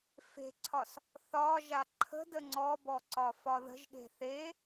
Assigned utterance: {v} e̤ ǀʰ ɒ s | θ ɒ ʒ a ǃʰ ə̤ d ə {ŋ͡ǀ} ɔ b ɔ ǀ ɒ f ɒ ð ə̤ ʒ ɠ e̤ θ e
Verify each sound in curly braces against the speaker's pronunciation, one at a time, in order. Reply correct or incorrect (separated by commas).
incorrect, correct